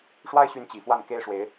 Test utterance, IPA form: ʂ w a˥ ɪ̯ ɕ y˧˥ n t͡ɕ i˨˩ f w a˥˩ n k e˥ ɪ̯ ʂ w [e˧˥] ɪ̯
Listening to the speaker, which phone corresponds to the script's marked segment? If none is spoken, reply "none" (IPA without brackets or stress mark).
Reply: e˧˥